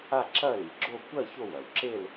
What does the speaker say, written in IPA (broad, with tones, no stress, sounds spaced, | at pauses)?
a˥˧ ǁ ɐ˥˧ l i˩ ɡ͡ǁ o˥˧ kʷ ɜ˥˧ ç o˥˧ w ɐ˩ w ǁ e˥˧ l